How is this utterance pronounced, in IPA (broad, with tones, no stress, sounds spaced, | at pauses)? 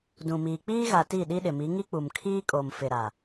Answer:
d ũ˨ m iː˨ k͡p iː˦ ɣ a˨ t i˦˨ ɗ i˦ ɗ ɪ˨ m i˨˦ ŋ i˦ k͡p u˨ m kʰ iː˦ kʼ o˨ m f ɪ˨ ɾ a˨